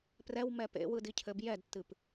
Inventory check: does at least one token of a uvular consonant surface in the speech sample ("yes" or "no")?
no